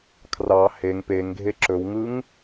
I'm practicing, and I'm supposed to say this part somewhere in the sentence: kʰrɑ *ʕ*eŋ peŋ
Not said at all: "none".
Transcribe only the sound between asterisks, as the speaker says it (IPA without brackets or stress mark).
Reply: h